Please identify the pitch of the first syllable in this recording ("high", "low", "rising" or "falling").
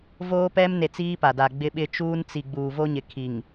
high